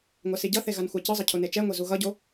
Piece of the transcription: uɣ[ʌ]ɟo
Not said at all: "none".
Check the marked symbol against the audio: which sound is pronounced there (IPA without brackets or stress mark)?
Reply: ʌ